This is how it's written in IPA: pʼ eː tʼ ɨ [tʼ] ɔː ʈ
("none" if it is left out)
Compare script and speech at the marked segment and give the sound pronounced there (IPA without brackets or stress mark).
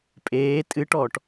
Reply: ʈ